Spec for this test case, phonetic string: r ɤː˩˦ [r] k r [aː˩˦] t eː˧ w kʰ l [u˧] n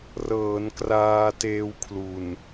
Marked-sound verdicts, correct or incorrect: incorrect, incorrect, incorrect

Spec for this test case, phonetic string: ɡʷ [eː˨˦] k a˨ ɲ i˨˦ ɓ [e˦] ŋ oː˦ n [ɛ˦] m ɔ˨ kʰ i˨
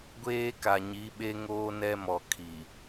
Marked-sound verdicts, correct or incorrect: incorrect, correct, correct

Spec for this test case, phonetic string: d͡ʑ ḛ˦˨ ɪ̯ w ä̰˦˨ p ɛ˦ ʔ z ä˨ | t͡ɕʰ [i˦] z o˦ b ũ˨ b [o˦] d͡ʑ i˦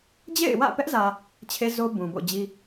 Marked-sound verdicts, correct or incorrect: incorrect, incorrect

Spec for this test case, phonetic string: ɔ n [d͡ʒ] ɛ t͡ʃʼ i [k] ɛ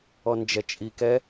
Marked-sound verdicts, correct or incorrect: correct, correct

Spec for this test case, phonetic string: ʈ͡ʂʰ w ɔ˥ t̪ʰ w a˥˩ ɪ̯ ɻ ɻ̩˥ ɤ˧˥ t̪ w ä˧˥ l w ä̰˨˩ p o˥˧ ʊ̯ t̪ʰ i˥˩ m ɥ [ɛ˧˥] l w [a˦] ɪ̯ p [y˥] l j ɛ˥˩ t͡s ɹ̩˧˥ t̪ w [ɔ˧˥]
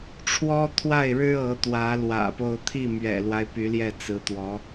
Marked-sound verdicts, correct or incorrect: incorrect, correct, incorrect, correct

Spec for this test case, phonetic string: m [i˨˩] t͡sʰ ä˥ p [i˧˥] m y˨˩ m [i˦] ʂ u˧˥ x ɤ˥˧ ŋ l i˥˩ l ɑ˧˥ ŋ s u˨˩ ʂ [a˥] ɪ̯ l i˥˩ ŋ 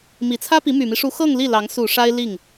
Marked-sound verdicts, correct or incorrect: correct, correct, correct, correct

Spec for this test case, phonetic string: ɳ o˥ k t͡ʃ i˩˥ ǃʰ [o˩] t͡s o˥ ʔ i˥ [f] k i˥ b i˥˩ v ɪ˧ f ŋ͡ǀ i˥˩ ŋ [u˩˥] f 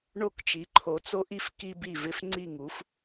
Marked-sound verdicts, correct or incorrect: incorrect, correct, correct

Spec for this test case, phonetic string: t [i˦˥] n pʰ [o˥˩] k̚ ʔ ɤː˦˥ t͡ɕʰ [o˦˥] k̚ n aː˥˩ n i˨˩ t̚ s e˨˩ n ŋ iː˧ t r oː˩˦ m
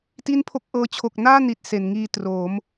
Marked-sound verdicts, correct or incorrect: incorrect, correct, incorrect

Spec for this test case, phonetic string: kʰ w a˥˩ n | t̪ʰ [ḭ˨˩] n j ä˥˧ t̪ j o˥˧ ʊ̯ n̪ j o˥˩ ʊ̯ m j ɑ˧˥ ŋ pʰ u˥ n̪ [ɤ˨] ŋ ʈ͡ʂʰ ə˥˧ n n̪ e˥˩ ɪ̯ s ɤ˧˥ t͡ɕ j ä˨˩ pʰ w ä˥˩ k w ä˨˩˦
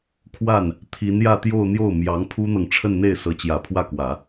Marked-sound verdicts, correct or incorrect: incorrect, correct

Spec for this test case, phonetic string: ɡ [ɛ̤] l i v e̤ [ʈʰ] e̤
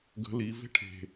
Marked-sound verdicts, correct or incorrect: incorrect, correct

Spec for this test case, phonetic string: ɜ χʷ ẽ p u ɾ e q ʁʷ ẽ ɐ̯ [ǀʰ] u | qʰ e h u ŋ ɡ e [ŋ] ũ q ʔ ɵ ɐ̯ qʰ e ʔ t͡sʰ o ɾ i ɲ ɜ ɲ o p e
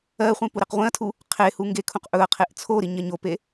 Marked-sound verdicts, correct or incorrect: incorrect, incorrect

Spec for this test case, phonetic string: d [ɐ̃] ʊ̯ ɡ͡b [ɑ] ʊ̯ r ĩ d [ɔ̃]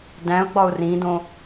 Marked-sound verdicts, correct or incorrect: incorrect, incorrect, incorrect

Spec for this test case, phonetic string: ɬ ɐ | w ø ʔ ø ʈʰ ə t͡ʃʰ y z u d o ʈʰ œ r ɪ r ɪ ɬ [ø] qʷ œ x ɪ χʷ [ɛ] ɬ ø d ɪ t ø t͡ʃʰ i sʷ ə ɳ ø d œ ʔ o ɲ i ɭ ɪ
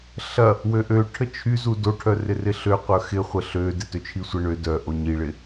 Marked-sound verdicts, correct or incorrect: correct, incorrect

